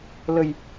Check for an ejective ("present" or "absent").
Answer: absent